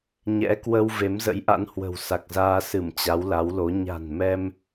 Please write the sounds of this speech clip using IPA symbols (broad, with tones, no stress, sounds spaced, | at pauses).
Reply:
ɲ ɛ̰˧˥ k w ə˧ w v e˨˦ m z ə̰˧˥ j ʔ a̰˧˥ n h w ə̤˨˩ w s a˨˩ k̚ z aː˧ s ɨ˧˩ m t͡ɕ a˨˦ w l a˨˦ w l o˨˦ ɲ a̤˨˩ n m ɛ˧ m